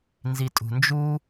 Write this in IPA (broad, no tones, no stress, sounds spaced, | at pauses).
n z i tʼ ṳ n d͡ʒ u